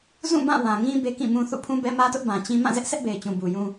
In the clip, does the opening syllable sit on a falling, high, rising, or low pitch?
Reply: falling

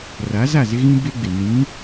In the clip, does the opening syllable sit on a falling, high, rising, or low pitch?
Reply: rising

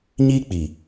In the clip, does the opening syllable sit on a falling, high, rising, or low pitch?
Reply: high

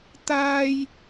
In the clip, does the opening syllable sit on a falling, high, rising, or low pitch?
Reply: high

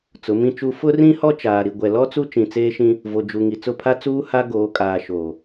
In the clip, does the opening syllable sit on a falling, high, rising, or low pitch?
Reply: rising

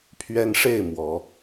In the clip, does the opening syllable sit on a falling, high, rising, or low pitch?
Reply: high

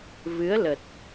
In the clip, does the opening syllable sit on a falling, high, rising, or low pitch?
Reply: rising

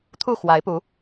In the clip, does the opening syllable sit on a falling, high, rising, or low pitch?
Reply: falling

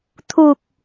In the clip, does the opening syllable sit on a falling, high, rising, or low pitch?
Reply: low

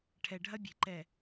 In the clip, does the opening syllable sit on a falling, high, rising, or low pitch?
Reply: low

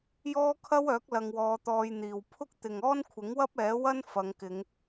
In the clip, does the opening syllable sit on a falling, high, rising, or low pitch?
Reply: high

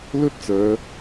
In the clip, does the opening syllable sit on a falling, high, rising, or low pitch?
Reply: high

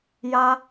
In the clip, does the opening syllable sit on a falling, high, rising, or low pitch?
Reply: high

